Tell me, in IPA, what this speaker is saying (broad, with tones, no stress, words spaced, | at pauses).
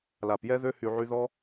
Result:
la˨p jɛ˧ðø˧hy˨ ʕy˧ðɔ˦